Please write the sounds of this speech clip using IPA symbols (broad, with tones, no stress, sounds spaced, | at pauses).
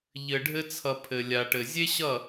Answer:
ʎ ɘ˨ ɖʱ ɘ˧ t͡sʰ ʌ˨ pʰ ɘ˨ lʲ a˨ ʈ ɘ˨ zʲ e˦ ɕ ʌ˦˨